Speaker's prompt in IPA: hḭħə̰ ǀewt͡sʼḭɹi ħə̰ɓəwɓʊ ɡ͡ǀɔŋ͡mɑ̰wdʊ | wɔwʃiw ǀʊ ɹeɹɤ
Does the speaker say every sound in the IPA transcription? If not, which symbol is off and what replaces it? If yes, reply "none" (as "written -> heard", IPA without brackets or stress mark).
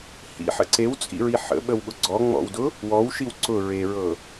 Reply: ɑ̰ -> ɔ̰